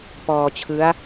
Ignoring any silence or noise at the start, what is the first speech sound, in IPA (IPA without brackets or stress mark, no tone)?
p